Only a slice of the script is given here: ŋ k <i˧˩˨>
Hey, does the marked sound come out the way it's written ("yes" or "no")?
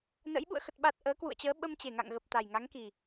no